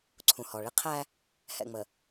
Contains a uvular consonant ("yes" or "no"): yes